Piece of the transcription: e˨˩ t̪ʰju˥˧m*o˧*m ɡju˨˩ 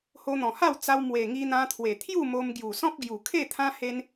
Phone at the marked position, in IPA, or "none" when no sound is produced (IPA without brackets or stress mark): o˧